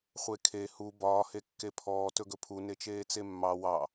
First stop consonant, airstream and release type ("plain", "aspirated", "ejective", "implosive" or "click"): aspirated